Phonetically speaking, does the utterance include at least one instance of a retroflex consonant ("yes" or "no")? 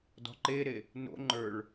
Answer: yes